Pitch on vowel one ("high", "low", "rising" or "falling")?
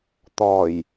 low